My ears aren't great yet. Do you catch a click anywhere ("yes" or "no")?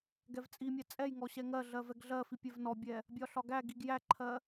yes